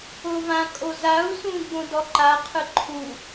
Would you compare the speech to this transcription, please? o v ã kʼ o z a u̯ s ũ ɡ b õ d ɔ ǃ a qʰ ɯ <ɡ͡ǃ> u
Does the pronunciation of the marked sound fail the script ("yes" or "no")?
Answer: yes